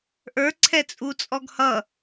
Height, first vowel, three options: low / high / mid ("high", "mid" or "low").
mid